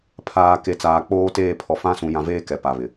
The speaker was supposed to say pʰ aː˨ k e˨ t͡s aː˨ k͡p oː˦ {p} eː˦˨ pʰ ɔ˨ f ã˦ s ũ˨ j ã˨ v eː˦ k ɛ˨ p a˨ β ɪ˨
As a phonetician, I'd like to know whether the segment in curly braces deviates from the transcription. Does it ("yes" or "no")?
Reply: yes